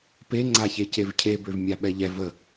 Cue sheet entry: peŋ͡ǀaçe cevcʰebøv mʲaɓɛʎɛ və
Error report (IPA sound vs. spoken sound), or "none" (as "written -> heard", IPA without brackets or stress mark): none